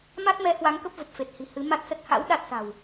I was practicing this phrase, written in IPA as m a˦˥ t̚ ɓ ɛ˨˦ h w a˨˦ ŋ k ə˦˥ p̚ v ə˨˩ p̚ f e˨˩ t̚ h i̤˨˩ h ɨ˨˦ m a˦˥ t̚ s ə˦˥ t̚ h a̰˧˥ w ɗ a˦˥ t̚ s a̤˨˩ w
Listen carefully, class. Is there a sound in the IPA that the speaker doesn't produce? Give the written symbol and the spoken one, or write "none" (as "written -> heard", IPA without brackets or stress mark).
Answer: ɓ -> m